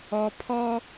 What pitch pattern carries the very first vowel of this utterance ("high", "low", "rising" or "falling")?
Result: low